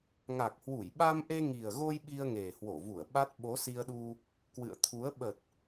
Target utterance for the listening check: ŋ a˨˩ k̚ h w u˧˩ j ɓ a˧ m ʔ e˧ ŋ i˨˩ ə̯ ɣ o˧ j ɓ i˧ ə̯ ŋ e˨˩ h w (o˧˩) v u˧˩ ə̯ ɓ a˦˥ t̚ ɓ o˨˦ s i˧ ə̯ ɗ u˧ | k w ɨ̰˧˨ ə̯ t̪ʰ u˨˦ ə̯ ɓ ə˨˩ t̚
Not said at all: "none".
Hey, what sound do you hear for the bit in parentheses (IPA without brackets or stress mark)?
o˧˩